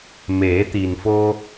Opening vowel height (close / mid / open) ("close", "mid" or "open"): mid